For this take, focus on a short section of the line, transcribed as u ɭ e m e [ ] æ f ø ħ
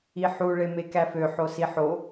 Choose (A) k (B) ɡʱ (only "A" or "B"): A